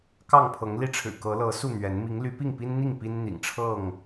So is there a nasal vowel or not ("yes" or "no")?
no